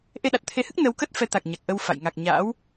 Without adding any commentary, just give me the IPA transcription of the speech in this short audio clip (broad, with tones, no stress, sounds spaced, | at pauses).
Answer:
ʔ e˧ ɗ a˨˩ t̚ t̪ʰ e˨˦ h ɨ˦˥ k̚ n ə˨˦ w k ə˦˥ t̚ f ɛ˨˦ t̪ a˨˩ k̚ ɲ a˨˩ k̚ ʔ ə˧ w f a̰˧˨ j ŋ a˨˩ k̚ ɲ a̰ː˧˥ w